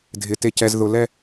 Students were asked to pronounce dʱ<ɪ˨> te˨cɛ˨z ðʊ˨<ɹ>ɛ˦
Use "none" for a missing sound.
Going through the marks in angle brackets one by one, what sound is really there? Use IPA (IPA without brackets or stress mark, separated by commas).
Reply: ɪ˨, l